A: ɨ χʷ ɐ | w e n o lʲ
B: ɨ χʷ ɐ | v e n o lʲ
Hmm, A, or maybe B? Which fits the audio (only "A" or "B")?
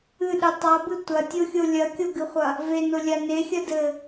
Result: B